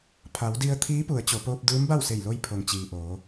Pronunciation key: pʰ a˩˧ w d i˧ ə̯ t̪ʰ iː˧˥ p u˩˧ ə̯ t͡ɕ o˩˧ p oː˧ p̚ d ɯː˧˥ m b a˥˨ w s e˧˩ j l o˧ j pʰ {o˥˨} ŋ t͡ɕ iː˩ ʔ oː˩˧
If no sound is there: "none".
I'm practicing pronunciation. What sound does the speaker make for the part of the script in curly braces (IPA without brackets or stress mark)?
o˩